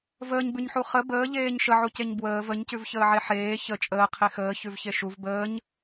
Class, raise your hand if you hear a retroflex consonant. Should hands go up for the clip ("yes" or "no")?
no